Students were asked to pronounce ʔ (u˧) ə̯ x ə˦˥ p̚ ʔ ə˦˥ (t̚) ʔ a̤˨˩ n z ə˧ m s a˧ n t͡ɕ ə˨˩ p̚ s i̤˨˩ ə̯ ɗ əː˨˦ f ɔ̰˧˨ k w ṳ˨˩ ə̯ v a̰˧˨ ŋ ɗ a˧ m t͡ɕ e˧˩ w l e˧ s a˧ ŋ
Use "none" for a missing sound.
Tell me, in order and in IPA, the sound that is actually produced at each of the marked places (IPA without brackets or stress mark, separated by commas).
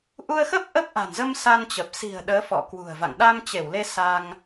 u˧, p̚